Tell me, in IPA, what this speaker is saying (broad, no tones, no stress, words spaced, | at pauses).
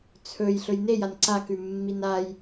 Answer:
t͡sʰɵj ɬɵjnejan ǀakʉmːin aj